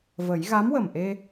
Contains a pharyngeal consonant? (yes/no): no